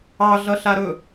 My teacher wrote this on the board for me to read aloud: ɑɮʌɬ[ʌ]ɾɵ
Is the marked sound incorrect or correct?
incorrect